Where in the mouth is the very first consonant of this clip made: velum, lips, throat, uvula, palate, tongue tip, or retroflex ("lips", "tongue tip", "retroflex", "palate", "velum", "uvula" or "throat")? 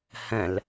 throat